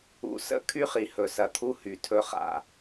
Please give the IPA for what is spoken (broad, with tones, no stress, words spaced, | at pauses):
ṵ˨sə̰˦ kʰy˦χi˨hɵ˨sɐ˨ t̪ʰu˦hy˨ tʰɵ˨χa̰˨